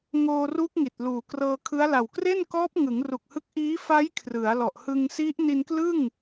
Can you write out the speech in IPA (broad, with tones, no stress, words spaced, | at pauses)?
ŋoː˧ru˦˥k̚ ŋi˨˩t̚ luː˨˩krɤː˧kʰɯ˦˥a̯la˨˩w kre˥˩nkɔː˦˥p̚ ŋɯ˩˦ŋru˨˩k̚hɯ˦˥k̚ ʔiː˦˥fa˦˥j kʰrɯ˩˦a̯lɔ˨˩ʔ hɯ˧ŋ si˦˥ʔ ni˧nklɯ˥˩ŋ